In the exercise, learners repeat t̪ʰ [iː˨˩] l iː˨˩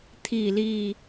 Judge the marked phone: correct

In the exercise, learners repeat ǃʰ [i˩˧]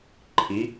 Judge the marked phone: correct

